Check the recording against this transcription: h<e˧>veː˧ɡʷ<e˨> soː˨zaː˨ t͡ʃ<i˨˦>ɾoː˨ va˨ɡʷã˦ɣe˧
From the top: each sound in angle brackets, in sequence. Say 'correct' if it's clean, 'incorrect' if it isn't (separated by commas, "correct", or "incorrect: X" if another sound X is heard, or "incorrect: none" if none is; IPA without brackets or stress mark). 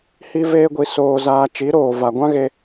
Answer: incorrect: i˧, incorrect: i˨, correct